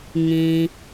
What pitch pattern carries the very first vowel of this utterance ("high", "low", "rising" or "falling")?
low